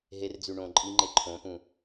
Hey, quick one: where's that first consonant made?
throat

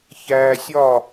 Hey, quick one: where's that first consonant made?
palate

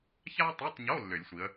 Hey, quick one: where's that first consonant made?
palate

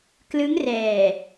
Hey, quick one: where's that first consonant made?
velum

